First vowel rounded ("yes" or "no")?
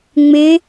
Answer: no